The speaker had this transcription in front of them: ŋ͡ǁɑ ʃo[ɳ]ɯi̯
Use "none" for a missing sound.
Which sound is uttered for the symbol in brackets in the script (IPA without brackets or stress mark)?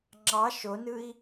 n